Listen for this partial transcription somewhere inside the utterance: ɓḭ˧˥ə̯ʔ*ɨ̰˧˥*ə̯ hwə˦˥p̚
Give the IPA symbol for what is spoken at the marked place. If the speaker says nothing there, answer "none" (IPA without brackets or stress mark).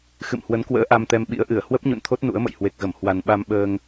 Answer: ɨ˧˩